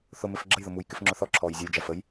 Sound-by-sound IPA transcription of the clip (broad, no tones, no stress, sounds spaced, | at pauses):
θ ʊ m ɪ f ɡ͡ǁ ə j ð ʊ m u j k ɪ f ŋ͡ǁ ʊ θ ɔ ǁʰ ɔː j zʲ ʌ j d͡ʒ æ f ə j